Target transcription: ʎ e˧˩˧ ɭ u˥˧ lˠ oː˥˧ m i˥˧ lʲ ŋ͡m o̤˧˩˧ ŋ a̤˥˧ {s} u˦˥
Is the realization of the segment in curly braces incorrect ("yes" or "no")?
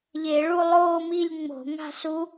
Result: no